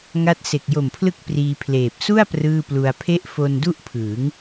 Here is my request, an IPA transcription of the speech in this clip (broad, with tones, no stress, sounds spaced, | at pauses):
ŋ a˦˥ t̚ s e˨˩ k̚ j o˨˩ m pʰ l ɯ˦˥ k̚ p r iː˧ pʰ l eː˨˩ p̚ s u˥˩ a̯ p r ɯː˥˩ p l u˧ a̯ pʰ e˥˩ ʔ f o˧ n d u˥˩ ʔ pʰ ɯː˩˦ ŋ